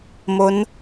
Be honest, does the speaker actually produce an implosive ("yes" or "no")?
no